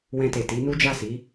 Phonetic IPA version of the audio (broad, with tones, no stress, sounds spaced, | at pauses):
w ɛ̃˧ t e˨ t i˨˦ n u˦ d͡ʒ a˦˨ s i˨˦